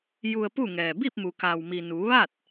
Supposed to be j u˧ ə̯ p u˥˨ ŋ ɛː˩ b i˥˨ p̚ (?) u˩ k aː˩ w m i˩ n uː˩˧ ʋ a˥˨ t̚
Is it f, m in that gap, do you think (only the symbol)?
m